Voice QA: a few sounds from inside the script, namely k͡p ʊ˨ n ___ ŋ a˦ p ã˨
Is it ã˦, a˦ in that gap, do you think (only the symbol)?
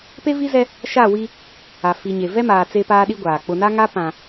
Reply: a˦